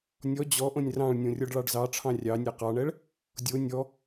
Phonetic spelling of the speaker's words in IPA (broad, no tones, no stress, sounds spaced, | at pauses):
nʲ ɔ d͡ʑ ɔ ʔ õ nʲ r ɑ̃ ɭ nʲ õ rʲ ɔ ɖ ɭ ɑ ɖ z ɑ ʈ͡ʂʰ ɑ̃ rʲ ɑ nʲ ɛ q ɑ ɳ ɛ ɭ | dʲ o nʲ ɔ